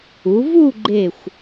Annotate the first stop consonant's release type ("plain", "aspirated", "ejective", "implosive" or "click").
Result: click